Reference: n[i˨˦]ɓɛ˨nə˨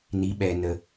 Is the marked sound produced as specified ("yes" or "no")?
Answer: yes